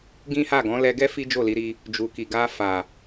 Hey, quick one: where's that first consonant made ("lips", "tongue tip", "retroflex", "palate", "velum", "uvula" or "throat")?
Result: velum